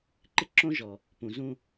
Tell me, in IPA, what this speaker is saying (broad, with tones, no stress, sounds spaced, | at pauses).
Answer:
ǃ ɪ˦ ǁ õ˦ ʒ ɔ˨ | p ũ˨ z ũ˦